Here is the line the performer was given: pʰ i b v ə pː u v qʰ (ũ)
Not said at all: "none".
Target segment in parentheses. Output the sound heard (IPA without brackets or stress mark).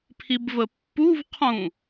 ũ